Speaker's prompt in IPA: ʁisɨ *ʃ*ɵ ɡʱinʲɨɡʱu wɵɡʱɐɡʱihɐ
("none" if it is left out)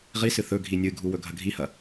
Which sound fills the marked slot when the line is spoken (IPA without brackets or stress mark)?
θ